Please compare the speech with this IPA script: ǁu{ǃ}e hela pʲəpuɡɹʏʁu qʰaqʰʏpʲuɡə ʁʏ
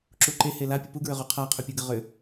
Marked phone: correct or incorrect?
correct